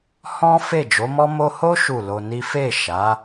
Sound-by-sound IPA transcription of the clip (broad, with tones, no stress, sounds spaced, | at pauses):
h ɔ̃˦ f e˦˨ d͡ʒ o˨˦ m ɔ˦ m o˦ h o˦ ʃ u˦˨ l o˧ n i˦ f e˦˨ ʃ a˨˦